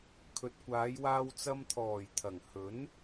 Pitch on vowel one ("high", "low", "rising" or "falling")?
low